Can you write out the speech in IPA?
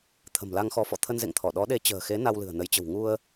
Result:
t̪ʰə̤˨˩mla˧ŋ xɔ˨˦fɔ̰˧˨ t̪ʰə˧nzḛ˧˨ŋt̪ʰɔ˧˩ ɗɔ˨˦ɗe˨˦t͡ɕə̤ː˨˩xe˨˦ na˧wlɨ̤˨˩ə̯nə˨˦jt͡ɕə̤˨˩w ŋu˧ə̯

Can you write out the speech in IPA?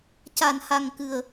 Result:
ca˨˩˨nha˨˩ŋkɨ˨˩ə̯

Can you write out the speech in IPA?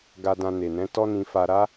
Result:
ɡa˧dã˧ne˨nɛ̃˨˦ tɔ˦nĩ˧fa˧ ɾa˦

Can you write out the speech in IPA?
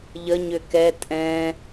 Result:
ʎə ɲʏkɛ tʼɛ̃

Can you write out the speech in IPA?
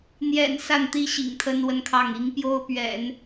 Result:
n̪jɛ̰˨˩n sa˥˩nt̪i˥ɕḭ˨˩ŋ t̪ʰə˥nwə˥nkʰɑ˥˩ŋ i˧˥ŋpjo˥ʊ̯pɥɛ̰˨˩˦n

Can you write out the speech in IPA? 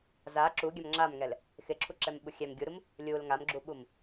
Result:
za ǁuɡʲam ŋ͡ǁamŋɛl | xɪǁʰuǁɛmɓu xʲɛm ɡʲuɾum | lʲul ŋamɡ͡ǁuɓum

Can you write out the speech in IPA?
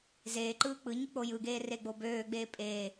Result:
zeːǃɯː k͡pɯɲɯ k͡pojɯɡeː reɡ͡bobøːɡ͡beː pʼeː

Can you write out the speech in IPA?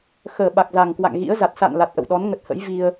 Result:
xəː˧˩ ɓa˨˩k̚za˨˩ŋkwa̰˧˨ŋ ɣḭ˧˥ə̯za˨˩t̚ sa̰˧˨nla˨˩t̚ ʔə̰˧˨wɗɔ˨˦nŋə˨˩t̚ hə̰˧˥jvi˧ə̯

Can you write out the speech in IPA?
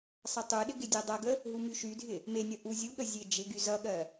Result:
sˤʌtˤuɗɪ ɡɪdʲɜdˤʌɡə | ɦumyʃydʱɪ | menʲʌ ʔuzʲuɠə zʲed͡ʒɪɡy zʌɠɜ

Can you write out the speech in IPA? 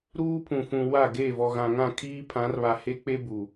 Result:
ɾuː˦pʰũ˨fũ˨ wa˦˨ɡe˦˨ vɔ˨ɣã˨ŋã˦˨ kʰiː˦pʰã˨˦rβa˨ he˦k͡pe˦ bu˨

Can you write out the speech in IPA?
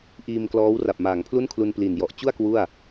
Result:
ʔiː˧mklɔː˦˥wra˨˩p̚maː˩˦ŋ pʰlu˥˩nkʰlu˧npli˨˩n jɔ˨˩ʔt͡ɕu˥˩a̯ kwu˥˩a̯

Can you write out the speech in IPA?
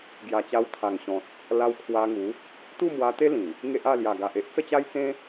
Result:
ɡja˨˩t͡ɕa˧w t̪ʰa˨˩ŋɕɔ̃˨t̚ | la˧wkʰwa˧ŋu˨˦ | t̪u˥˧mwa˧t̪e˦ lĩ˨˩ | ŋe˦ʔa˥˧ lja˨˩ɡa˨ʔ e˦ʔt͡sə˥˧t͡ɕa˦jt͡sẽ˦

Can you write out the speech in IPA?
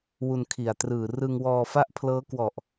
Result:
wu˧nkʰi˨˩a̯trɯː˨˩ rɯ˧ŋwɔː˧ fa˥˩ʔ pʰlɤː˦˥kwɔ˨˩ʔ

